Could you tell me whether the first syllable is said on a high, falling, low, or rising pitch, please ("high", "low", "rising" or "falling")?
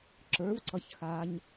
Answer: rising